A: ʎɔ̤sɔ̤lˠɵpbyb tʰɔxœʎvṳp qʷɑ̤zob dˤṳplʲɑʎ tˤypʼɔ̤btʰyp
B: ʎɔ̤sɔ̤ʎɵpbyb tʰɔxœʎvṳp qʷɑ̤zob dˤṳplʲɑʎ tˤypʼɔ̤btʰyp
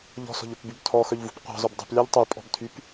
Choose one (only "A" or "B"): B